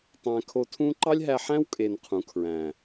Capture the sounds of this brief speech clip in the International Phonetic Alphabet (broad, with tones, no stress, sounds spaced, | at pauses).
tˤ æ̃˧ kʰ o˧ tʰ ũ˦ ǃ ɑ˦ lʲ ɦ æ˧ ħ æ̃˦ w kʼ e˨ n qʰ ũ˨˦ kʰ ɹ æ̃˨